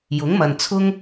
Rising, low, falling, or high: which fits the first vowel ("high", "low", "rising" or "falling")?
rising